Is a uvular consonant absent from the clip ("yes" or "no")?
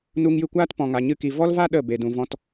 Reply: yes